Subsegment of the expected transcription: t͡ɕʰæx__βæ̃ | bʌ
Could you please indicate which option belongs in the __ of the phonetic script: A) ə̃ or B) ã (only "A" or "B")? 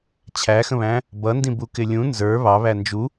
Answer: A